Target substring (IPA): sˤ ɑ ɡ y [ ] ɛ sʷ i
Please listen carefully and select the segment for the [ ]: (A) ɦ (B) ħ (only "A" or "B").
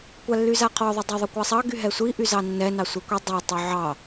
A